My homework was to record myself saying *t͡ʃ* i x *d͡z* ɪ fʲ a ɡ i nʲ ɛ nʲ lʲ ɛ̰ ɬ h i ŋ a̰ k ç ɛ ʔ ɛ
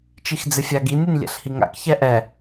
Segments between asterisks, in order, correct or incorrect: correct, correct

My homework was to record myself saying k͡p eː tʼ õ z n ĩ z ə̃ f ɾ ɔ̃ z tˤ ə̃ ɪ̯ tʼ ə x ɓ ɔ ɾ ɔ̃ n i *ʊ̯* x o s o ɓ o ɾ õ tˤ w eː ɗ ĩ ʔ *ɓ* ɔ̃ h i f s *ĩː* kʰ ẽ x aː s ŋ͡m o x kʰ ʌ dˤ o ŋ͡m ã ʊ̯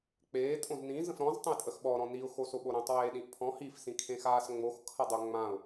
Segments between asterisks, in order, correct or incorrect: correct, incorrect, incorrect

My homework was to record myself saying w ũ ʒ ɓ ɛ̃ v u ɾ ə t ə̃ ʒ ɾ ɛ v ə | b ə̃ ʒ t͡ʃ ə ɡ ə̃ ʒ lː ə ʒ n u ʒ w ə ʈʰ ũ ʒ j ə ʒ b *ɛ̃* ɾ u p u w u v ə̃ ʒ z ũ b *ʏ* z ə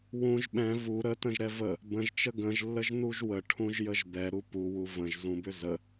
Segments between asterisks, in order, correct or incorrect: incorrect, correct

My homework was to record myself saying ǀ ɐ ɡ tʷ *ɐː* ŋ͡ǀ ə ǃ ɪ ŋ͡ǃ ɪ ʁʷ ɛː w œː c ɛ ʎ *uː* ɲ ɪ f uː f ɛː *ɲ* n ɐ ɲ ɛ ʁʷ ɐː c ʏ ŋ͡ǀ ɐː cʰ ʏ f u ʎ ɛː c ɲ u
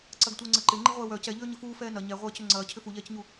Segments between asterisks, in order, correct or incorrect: incorrect, incorrect, incorrect

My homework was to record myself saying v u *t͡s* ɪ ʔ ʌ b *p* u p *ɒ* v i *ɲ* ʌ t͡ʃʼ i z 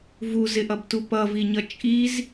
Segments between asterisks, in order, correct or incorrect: incorrect, incorrect, incorrect, correct

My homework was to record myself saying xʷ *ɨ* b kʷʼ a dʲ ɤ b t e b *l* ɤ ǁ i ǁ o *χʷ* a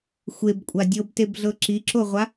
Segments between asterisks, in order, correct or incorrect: incorrect, incorrect, incorrect

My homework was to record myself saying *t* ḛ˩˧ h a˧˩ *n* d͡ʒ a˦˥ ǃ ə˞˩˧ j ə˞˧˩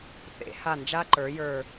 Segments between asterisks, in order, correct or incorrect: incorrect, correct

